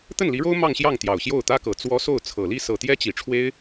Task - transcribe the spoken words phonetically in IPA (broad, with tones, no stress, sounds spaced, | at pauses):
t̪ ə˥˩ n l i˧˥ ɻ o˥ ʊ̯ m ɑ˥˧ ŋ ɕ j ɑ˥˩ ŋ t̪ j ɑ˨˩ ʊ̯ ɕ j o˥˩ ʊ̯ t̪ ä˥ k ɤ˨˩ t͡s w ɔ˧˥ s o˥˩ ʊ̯ t͡sʰ ɤ˨˩ l i˥˩ s ɤ˨˩ t̪ j ɛ˥ t͡ɕ i˨˩ ʈ͡ʂʰ w e˥ ɪ̯